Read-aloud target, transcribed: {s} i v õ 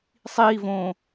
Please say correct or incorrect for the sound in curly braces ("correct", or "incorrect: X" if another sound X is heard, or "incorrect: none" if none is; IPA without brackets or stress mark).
incorrect: sˤ